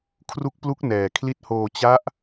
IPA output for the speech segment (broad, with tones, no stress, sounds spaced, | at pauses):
kʰ r u˦˥ k̚ p l u˦˥ k̚ n ɛː˧ kʰ l i˦˥ t̚ h oː˧ t͡ɕ a˦˥ ʔ